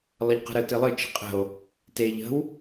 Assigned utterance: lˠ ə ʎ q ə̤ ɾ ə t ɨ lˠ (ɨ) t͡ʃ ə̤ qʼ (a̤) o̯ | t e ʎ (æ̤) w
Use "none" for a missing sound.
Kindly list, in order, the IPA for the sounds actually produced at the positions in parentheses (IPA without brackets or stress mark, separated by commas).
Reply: ɨ, ə̤, ə̤